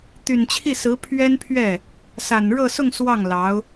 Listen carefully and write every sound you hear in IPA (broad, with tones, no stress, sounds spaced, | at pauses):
t̪ y˨˩ n t͡ɕʰ i˥˩ s ɹ̩˧˥ pʰ ɥ ɛ˥ n pʰ ɥ ɛ˥˩ | s a˨˩ n ɻ ɤ˥˧ s ʊ˥˧ ŋ s w ɑ˥˩ ŋ l ɑ˧˥ ʊ̯